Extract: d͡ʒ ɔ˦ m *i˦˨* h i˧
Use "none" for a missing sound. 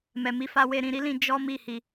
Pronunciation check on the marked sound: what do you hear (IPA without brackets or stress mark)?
i˦˨